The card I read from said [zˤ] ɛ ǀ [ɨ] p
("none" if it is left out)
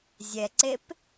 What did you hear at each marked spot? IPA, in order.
zʲ, e

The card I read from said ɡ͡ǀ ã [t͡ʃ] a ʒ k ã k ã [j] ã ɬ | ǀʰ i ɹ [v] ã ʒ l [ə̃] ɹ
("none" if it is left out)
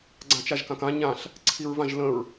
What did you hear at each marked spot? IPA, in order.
t͡ʃ, ɲ, v, ə̃

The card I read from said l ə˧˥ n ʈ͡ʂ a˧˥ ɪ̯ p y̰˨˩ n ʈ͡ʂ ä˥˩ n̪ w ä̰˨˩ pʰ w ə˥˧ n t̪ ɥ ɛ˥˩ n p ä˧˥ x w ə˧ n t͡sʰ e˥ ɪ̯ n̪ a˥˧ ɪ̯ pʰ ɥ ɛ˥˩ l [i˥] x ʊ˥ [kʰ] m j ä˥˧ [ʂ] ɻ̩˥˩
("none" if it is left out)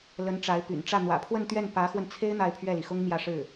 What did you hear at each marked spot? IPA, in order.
i˩, ŋ, ʂ

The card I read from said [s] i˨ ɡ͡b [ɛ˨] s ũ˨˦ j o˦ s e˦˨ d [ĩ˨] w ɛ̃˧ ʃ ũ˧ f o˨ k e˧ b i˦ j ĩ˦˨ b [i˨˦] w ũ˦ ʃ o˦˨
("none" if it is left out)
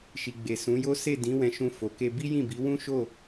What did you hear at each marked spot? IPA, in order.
ʃ, e˨, ĩ˨˦, i˨˦

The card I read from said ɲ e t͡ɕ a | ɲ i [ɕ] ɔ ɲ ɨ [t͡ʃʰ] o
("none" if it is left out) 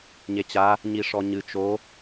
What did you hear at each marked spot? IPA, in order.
ʂ, t͡ʃ

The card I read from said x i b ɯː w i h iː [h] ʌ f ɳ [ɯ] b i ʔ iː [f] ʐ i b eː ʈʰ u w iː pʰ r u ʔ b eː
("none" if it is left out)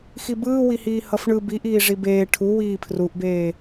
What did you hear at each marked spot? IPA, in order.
h, ɯ, none

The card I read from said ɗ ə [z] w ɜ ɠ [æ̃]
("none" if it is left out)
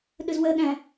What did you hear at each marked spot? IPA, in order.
z, æ̃

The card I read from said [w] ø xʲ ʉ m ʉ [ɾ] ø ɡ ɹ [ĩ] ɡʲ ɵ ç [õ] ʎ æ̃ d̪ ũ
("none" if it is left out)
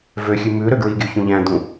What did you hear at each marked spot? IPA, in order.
v, ɾ, i, ũ

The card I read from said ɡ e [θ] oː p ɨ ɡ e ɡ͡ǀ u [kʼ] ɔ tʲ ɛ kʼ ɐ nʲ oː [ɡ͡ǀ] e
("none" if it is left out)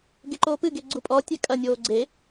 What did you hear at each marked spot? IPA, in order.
ǃ, pʼ, ɡ͡ǀ

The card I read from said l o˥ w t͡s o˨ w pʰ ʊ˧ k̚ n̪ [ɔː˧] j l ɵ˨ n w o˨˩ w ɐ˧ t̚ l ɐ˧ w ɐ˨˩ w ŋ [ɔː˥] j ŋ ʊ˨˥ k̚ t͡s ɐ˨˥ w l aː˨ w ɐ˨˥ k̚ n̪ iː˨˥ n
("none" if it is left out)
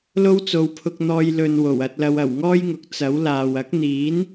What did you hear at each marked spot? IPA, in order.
ɔː˧, ɔː˥

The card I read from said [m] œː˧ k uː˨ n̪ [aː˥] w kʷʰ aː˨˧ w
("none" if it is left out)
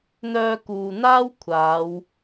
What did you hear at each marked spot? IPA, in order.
n̪, aː˥

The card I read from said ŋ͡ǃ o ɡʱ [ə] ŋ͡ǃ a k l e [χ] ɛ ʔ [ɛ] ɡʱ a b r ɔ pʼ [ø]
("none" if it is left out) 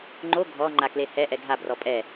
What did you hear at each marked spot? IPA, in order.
ɔ, h, ɛ, ɛ

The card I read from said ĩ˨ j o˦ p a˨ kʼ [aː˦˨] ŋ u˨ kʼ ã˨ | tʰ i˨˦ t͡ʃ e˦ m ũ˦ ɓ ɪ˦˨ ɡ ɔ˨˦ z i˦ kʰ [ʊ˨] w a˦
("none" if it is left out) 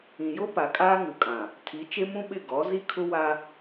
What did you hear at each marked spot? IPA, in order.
aː˦, ʊ˦

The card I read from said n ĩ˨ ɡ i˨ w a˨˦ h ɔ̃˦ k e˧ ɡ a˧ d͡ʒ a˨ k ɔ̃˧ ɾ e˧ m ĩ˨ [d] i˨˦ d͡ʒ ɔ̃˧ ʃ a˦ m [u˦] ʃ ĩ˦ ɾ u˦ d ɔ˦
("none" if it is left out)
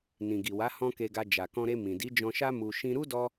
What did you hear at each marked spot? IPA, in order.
d, u˧

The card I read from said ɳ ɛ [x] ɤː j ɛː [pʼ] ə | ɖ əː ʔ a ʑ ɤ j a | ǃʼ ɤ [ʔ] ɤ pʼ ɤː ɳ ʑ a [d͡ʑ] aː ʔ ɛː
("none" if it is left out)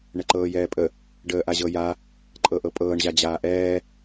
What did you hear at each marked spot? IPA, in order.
ǃ, pʼ, ʔ, d͡ʑ

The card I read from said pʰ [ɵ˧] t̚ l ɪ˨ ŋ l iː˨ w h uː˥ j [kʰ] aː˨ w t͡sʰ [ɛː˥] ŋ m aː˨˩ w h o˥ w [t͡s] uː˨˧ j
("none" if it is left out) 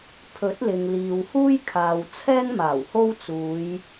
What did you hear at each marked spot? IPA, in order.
ɵ˨˥, kʰ, ɛː˥, t͡s

